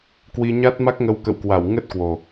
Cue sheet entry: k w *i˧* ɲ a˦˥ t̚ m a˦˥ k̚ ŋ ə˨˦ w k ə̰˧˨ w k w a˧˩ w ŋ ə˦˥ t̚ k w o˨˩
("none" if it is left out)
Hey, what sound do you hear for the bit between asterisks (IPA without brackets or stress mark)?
i˧